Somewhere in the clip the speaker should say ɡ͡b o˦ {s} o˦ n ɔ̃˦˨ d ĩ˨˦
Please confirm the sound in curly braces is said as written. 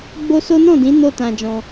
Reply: yes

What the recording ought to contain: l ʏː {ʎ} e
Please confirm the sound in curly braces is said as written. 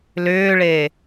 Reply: no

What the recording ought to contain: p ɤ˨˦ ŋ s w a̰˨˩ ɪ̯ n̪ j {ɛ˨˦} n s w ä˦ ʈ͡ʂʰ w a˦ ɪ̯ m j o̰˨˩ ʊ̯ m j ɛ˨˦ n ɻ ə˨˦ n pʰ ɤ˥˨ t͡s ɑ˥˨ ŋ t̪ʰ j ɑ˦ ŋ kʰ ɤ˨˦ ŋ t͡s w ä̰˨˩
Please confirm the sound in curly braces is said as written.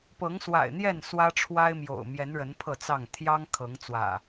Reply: no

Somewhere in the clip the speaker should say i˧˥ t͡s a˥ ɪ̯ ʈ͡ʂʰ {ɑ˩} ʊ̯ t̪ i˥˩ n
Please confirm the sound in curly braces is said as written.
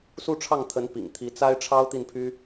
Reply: no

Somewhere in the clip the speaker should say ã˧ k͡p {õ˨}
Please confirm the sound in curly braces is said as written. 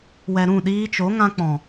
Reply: no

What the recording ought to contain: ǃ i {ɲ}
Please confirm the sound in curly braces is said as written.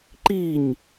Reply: yes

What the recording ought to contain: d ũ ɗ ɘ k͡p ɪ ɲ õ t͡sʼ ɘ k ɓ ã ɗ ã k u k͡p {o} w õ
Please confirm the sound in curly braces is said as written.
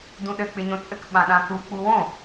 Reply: no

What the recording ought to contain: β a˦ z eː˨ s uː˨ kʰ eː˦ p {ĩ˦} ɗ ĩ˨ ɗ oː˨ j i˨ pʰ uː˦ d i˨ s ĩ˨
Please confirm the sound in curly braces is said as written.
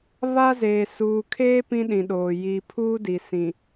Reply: yes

